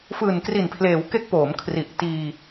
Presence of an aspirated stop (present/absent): present